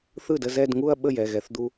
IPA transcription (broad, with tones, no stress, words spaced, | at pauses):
θɯ˥˩də˥˧zɛ˥˧dŋu˥˧ɐ̯ ɓə˥˩ jɛ˩˧˩ɣɛ˧˩˧θd̪u˧